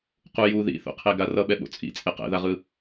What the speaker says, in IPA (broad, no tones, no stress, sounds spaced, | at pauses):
q u j u ð ḭ θ o̰ qʰ e ɡ a r ʌ ɓ ɛ ɓ o̰ t͡sʼ ḭ t͡sʼ e q ɛ̰ ð a ʁ ɯ